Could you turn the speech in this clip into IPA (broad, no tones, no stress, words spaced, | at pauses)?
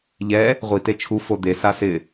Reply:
ʎɛ | ʁʷi tet͡ʃʰu fod̪e sasɪ